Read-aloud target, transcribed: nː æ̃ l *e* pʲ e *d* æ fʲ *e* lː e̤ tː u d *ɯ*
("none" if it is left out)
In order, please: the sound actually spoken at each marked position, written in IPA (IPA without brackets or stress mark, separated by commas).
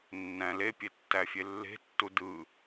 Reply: e, tː, e, ɯ